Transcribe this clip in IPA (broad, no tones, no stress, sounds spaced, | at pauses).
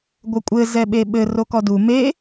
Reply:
ɡʷ ɘ kʷʼ ɘ z ɛ ɓ e ɓ ɘ r o k ɔ d u m e